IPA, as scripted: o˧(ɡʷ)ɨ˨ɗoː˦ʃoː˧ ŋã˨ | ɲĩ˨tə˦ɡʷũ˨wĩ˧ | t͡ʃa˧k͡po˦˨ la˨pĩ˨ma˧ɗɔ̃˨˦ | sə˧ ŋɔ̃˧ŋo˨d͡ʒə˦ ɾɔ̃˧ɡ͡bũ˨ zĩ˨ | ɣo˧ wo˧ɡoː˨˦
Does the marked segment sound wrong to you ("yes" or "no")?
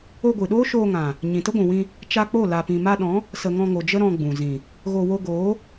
no